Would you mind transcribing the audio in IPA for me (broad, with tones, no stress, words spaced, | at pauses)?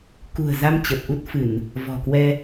kṳ˨˩ə̯za˧m t͡ɕə˨˩p̚ʔu˦˥t̚fɨ˧˩˨n | vɔ̤˨˩kwɛ˧